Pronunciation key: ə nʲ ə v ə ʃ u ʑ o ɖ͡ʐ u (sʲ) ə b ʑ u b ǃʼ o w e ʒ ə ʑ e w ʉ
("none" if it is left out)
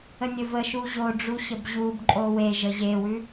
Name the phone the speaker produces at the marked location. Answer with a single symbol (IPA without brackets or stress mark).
ɕ